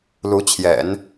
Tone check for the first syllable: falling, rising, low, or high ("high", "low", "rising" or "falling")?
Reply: rising